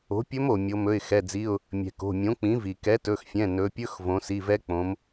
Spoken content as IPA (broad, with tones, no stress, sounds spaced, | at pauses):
o̤˩˥ pʲ ɵ˧˥ m o˩ mʲ o˩˧ m ɵ˩˧˩ ɪ̯ x ɛ˩˧˩ d͡z i˩˧˩ ʊ̯ | mʲ ɛ̤˩ k o̤˩˧˩ mʲ õ˩˥ k͡p ĩ˩˥ v i˩ k ɛ˩˥ t ɵ˩˧˩ x fʲ ɛ̃˩˧˩ n ɵ˩˧ pʲ ɵ˧˥˧ x v õ˩˧ s i˩˧˩ v ɛ˧˥ k͡p õ˩˧ m